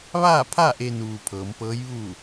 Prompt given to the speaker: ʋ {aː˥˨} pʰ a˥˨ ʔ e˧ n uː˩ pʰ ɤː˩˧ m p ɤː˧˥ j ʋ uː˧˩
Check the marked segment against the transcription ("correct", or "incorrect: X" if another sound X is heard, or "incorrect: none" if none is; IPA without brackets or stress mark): correct